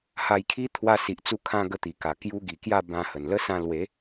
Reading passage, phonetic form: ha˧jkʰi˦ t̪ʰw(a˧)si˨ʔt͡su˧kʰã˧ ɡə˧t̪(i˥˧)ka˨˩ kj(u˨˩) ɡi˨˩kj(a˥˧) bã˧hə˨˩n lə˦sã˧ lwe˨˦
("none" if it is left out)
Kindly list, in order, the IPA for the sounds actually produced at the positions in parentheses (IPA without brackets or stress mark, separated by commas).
a˧, i˨˩, u˧, a˥˧